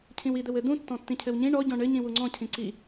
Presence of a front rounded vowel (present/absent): absent